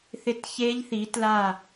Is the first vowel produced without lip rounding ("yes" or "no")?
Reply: yes